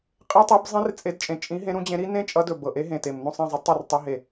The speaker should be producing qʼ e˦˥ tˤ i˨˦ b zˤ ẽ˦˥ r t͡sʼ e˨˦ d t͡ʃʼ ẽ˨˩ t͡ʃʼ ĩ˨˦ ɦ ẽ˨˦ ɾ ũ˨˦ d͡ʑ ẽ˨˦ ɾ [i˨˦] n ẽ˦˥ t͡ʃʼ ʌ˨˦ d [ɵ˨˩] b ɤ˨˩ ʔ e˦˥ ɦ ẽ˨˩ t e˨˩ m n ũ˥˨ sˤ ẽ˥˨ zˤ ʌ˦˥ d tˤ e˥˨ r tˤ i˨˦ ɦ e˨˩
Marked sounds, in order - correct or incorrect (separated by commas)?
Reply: incorrect, correct